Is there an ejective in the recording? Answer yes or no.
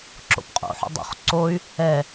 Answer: yes